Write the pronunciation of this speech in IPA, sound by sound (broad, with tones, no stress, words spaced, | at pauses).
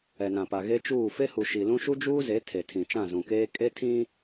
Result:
ɛ˨nã˨pa˨ ɣe˦t͡ʃuː˦˨ fe˦hu˨ ʃi˨lũ˦ ʃu˦d͡ʒuː˦ze˨˦ tʰe˨tʰĩ˨ t͡ʃã˦˨zũ˨keː˦ kʼe˦tʰĩ˦